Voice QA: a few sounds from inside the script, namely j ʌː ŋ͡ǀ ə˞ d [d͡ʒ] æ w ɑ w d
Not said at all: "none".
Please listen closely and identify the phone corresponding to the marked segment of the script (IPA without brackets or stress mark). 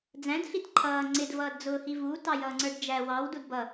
d͡ʒ